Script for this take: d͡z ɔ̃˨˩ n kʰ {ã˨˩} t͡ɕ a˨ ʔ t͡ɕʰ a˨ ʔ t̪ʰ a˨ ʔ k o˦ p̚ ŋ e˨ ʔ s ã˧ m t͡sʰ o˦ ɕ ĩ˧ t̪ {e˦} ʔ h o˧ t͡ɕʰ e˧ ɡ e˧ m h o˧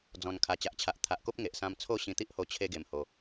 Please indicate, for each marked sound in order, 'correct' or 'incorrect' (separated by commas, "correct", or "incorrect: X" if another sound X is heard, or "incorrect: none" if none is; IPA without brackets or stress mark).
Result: incorrect: a˨˩, incorrect: i˦